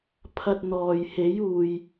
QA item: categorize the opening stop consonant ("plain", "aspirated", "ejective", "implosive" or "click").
aspirated